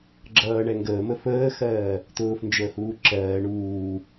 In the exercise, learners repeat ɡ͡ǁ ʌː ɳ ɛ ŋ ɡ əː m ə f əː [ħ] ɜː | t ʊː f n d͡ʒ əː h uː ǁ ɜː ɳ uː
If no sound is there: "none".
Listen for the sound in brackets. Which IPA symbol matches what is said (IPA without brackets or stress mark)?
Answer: x